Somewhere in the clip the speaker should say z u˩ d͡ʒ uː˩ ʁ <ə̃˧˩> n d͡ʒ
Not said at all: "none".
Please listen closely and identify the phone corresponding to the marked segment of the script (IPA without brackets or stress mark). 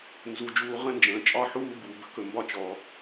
ə̃˧˩